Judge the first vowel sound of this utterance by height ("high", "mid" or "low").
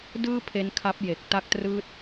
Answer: high